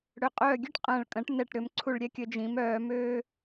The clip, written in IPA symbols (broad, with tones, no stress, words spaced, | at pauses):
ɽø˨˩qʼœː˦˨ɡʲø˥ʈ qʼɐ̃ː˨˩ɭkʼɐ̃˨˩˦ʈ nɛ˦˨ʈ ɾʏ˨˦mǀʰu˦˨ɭɾʲɛ˥kʲə˨˦ d͡ʒĩ˨˦mœː˨˦møː˥